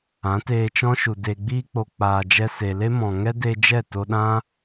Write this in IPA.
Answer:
ã˨˦teː˧t͡ʃɔ̃˦ʃu˨ de˨ɡ͡biː˧k͡po˨ k͡paː˨d͡ʒɛ˧ se˨le˦mɔ̃˨ ŋɛ˦de˧ d͡ʒɛ˦˨to˧ɗã˦

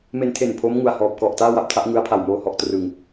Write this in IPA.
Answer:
me˧ntʰe˨˩n pʰo˦˥mŋu˨˩a̯hɔː˨˩p̚ kɔ˨˩ʔtaː˥˩wa˦˥p̚ tʰa˦˥ʔŋɯ˦˥a̯pʰa˨˩w moː˦˥hɔ˨˩ʔtrɯ˧ŋ

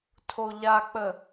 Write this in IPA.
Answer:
tʰoʎak͡pə

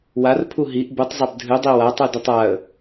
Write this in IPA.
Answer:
warpʰu ɦiʔ butˤzˤab dʱɨdˤi watˤudutˤ aə̯

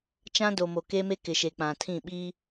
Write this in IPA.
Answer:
t͡ʃã˦do˨mo˨ ke˦me˦kɪ˨ ʃe˨k͡pã˨tʰĩ˦˨ ɓiː˦

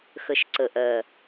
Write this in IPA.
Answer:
xə˨ʃǀə˨ʔɜ˨

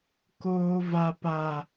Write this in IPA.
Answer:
koː˦va˦pa˦

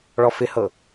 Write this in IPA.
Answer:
ɭɔfɪhɤ

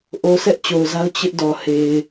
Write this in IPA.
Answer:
ʔo˨ sʰɛ˦ʔt͡ɕo˨ʊ̯za˦ʊ̯ t͡ɕɪ˦ʔdɔ˨he˨ɪ̯

